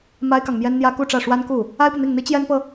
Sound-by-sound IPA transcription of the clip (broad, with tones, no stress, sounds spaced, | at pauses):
m a˥ ɪ̯ k ɑ˨ ŋ m j ɛ˥ n n̪ j ä˥ k u˥˧ ʈ͡ʂ ä˥˩ ʂ w a˥ n k u˥˩ | a˥ ɪ̯ p ɤ˨ n̪ i˥˩ ŋ n̪ i˥ t͡ɕ j ɛ˥ n p ɤ˨